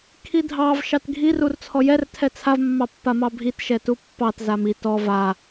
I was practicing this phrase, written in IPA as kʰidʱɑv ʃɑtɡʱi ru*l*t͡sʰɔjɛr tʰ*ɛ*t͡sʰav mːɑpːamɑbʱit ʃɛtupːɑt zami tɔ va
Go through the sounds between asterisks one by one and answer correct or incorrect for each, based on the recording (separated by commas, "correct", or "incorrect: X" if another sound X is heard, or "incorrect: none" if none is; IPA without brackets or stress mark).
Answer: incorrect: r, correct